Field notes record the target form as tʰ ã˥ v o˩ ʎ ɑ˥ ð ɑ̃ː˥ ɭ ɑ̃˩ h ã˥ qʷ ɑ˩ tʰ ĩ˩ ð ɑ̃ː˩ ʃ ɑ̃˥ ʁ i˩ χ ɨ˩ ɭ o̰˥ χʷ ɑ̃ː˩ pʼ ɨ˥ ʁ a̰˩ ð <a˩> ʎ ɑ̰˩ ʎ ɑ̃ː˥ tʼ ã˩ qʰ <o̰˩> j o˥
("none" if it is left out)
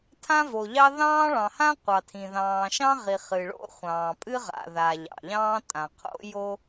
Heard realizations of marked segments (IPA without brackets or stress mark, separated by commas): a˩, o̰˥